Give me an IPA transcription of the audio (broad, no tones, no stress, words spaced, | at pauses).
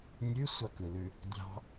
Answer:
nʲʉsʷɑkɯlʉ | dʲɑ̤